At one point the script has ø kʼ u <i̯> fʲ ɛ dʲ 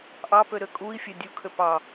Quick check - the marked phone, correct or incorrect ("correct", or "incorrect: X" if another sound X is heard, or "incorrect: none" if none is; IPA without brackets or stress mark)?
correct